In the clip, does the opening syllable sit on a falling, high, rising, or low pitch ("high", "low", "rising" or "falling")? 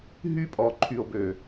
high